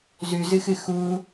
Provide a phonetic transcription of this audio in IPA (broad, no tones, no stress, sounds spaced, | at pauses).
z ʉ z ɨ x ɨ x u